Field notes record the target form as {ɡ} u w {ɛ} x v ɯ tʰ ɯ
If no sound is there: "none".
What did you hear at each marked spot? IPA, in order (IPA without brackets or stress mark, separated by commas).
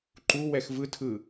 ǃ, ɛ